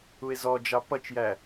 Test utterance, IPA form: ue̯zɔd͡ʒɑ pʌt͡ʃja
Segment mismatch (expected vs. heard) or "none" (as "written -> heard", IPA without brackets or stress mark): a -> æ